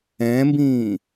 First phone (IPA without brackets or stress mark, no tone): ɛ̃ː